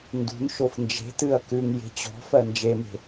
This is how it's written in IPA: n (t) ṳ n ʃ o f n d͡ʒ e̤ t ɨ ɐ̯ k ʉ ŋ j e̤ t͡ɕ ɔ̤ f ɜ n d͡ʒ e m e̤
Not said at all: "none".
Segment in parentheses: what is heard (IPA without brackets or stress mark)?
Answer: d